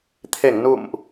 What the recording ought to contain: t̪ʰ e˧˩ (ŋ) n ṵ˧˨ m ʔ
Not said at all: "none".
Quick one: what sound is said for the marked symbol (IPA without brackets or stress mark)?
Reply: ŋ